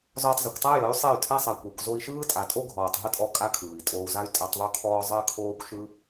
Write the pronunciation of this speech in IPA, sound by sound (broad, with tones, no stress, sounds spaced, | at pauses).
z ɔː˧ tˤ z o˨ kʷ tˤ a˦ j ə˨˦ y̯ sˤ e˦˨ y̯ tʰ a˦ sˤ a˨ kʷ e˨ kʷ z o˧ i̯ ʃ ɯː˦ tʼ a˨ tʼ o˦ ɡʱ ɔː˨ tˤ ɦ ə˦ tʼ ɔ˧ kʼ a˦ kʰ ɯː˨ i̯ tʼ oː˧ u̯ z a˦ y̯ tʼ a˧ tˤ ðˤ o˦ kʰ ɔː˧ zˤ əː˦ kʰ oː˦ kʷ ʃ ɯ˦